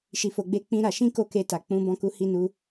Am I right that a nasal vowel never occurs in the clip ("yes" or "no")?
no